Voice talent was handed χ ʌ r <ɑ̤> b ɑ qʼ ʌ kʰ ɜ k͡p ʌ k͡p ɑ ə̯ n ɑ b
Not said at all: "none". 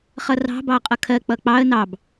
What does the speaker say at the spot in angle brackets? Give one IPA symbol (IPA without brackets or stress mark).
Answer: ɑ̤